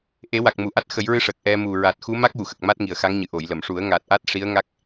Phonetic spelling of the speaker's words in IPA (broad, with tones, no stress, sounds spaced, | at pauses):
ʔ e˨˩˦ w a˨˩ k̚ m u˨˩ ʔ a˦˥ t̚ x ə˨˩˦ j ɹ ɨ˧ ʂ ə˨˩ k̚ ʔ ɛ˧ m u˨˩ ɹ a˨˩ t̚ x u˧˥ m a˦˥ k̚ w u˨˩˨ x ə˨˩ k̚ m a˦˥ t̚ ŋ i˨˩ ə̯ x a˧˥ ŋ ɲ ɨ˨˩ ʔ o˨˩˨ j l ə˨˩˨ m ʂ u˨˩˦ ə̯ ŋ a˨˩ t̚ ʔ a˦˥ t̚ ʂ i˧˥ ə̯ ŋ a˦˥ k̚